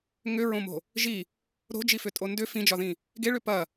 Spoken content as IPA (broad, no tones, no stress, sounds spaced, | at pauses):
ŋ ʏ ɹ õ m o̤ | ʒ i | ɾ o̤ d͡ʒ i f ʏ tʼ o n d ʏ f ĩ d͡ʒ ɒ ð ĩ | ɡ e ɭ ʏ p ɐ